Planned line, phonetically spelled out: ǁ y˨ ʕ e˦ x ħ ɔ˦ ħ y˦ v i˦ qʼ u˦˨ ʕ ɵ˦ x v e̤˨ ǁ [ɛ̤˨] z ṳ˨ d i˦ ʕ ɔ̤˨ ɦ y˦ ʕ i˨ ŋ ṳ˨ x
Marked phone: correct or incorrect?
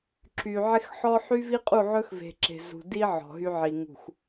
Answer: incorrect